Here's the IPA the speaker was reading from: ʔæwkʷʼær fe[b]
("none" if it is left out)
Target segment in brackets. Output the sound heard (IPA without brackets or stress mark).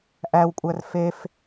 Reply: f